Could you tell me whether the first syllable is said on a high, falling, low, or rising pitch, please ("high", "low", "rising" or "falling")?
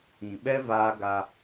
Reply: low